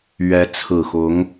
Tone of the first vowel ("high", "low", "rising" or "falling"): rising